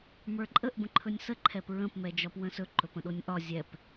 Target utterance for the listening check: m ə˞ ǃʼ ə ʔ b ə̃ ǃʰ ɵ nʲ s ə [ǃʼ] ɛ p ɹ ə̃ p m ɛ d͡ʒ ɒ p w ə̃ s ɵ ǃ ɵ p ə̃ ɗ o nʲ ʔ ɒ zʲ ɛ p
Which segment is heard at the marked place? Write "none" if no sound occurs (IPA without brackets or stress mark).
ǃʰ